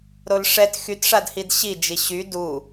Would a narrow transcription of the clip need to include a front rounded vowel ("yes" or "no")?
yes